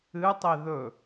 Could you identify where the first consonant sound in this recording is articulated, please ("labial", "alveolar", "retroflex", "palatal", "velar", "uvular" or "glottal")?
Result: alveolar